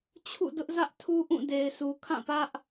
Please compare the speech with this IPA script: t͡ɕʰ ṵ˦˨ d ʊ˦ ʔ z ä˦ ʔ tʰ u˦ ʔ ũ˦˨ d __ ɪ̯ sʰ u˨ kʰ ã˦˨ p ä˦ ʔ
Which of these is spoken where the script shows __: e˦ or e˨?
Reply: e˨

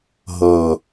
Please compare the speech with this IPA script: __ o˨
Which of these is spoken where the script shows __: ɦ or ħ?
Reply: ɦ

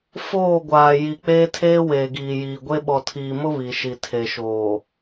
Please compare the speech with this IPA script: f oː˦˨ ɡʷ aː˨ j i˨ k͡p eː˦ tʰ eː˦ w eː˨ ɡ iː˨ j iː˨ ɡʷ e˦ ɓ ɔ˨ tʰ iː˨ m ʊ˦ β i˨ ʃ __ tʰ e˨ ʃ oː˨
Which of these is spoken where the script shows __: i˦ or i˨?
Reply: i˨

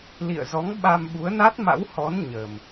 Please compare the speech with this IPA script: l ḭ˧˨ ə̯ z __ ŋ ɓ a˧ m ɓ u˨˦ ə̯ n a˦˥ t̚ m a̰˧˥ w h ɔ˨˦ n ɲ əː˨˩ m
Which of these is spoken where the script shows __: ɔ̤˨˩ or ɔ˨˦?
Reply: ɔ˨˦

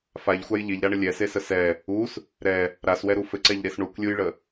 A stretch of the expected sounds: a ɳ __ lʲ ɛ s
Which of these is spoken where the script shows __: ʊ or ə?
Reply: ə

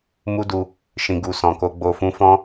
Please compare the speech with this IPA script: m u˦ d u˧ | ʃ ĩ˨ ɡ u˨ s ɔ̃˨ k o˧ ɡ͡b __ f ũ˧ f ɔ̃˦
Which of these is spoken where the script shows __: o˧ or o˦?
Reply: o˧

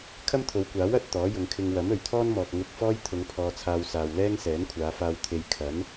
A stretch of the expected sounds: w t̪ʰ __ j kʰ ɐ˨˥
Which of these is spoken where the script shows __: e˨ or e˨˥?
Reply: e˨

